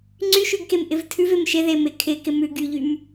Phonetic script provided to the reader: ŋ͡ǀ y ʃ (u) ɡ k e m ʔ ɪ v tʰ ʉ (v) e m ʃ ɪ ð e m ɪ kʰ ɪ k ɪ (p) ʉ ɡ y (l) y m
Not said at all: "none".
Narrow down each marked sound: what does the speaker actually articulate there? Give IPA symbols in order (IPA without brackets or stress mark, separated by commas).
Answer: ʉ, v, m, ʎ